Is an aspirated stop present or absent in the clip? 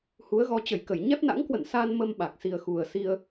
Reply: absent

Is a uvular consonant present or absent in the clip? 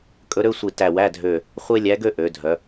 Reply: present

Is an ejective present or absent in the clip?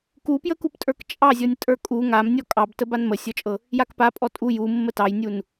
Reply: present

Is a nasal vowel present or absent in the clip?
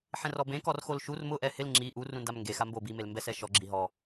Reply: present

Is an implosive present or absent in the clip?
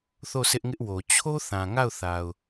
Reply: absent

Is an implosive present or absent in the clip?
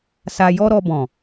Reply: absent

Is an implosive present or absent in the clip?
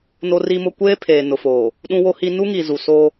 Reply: present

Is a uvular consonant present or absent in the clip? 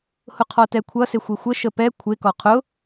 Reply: present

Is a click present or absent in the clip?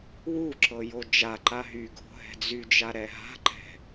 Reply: present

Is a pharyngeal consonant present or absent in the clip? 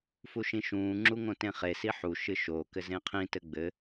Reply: present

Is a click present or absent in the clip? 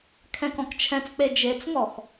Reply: absent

